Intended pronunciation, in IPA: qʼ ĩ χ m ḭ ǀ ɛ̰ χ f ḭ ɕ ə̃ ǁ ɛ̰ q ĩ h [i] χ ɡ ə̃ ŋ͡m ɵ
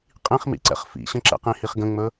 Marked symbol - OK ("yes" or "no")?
yes